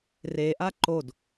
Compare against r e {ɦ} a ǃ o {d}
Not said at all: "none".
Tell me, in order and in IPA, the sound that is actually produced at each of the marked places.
ʔ, d

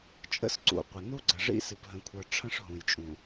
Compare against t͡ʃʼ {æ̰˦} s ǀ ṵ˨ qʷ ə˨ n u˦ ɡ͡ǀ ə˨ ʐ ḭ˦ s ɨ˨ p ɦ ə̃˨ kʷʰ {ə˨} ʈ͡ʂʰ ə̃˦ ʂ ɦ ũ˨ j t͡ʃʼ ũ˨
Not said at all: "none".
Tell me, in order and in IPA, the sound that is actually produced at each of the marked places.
ə̰˦, ə˞˨

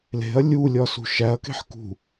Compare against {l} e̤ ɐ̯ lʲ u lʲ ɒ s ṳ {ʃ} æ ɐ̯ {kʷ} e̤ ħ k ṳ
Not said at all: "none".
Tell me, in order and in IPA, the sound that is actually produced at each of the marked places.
l, ʃ, k

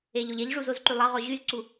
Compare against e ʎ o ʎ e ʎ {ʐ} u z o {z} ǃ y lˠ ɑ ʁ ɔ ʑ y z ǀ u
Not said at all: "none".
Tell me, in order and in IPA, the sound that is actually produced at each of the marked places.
ʐ, z

